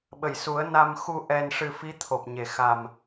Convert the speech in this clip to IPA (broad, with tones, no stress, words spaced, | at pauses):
ɓə˨˩˨jsu˨˩˦ə̯ na˧m xu˧ ʔɛ˧nʂɨ˧ fi˧˥t̪ʰo˨˩p̚ɲe˨˩ xa˨˩m